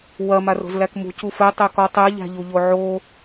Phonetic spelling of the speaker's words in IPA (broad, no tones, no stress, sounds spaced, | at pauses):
w ɐ m a r o̤ z l æ k m ṳ c u f ɛ tˤ ɛ k ɔ tˤ ɛ ʎ æ̤ ʎ u ʎ o ʕ o